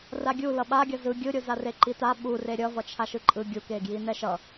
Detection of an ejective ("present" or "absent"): present